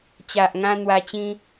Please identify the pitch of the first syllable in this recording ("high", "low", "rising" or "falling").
low